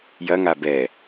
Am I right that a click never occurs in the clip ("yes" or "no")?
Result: yes